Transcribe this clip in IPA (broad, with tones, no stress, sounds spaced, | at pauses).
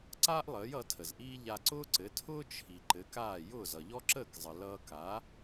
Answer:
ǀ aː˥ ʔ lˠ əː˩˥ j ʌ˩˥ tʰ ə˩ z ʔ iː˥ ʎ a˧ ǀ ʊː˥ ǀ ɘ˩˥ tʰ ʊː˥ t͡ʃʰ i˩ ǃ ɘ˩˥ k aː˥˩ j ʊː˥˩ z ʌ˩ ʎ ɔ˥ ǁ əː˥˩ k zˤ ə˩ l ʌː˧ k a˩˥